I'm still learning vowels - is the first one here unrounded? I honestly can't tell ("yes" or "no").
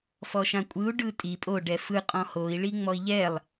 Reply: no